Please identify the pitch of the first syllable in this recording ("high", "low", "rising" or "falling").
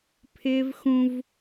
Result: high